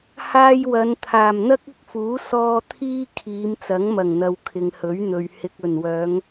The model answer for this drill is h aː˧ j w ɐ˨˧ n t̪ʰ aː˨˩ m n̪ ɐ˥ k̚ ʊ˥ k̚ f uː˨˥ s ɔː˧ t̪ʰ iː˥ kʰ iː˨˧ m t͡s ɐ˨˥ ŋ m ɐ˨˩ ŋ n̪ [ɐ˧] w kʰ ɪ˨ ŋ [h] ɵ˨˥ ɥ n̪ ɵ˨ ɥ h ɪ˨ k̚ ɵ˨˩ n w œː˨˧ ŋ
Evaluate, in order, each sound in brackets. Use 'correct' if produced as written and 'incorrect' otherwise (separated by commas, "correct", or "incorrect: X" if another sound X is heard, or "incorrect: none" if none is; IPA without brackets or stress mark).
incorrect: ɐ˨, correct